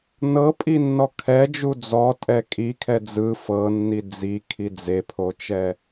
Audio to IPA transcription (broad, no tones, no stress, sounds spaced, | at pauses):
n ɤ pʼ i nː ɔ kʰ ɛ d͡ʒ u d͡z ɔ tʼ ɛ kʼ i kʰ ɛ d͡z ɯ f ɤ nː i d͡z i kʰ i d͡z e pʰ o t͡ʃ ɛ